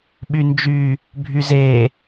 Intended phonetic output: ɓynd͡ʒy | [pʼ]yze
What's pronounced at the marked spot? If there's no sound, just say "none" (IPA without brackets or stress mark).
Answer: bʱ